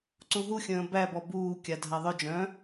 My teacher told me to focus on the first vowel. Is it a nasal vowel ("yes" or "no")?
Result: yes